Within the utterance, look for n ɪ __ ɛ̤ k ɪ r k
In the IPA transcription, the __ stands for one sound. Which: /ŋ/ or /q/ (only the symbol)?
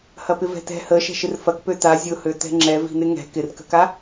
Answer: ŋ